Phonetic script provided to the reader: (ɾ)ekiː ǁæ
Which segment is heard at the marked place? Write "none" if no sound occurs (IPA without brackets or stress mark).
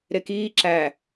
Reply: ɾ